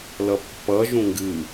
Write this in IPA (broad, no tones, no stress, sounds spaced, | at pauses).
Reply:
l ʌ pː ʌ ʒ ũ ŋ ɡ ɨ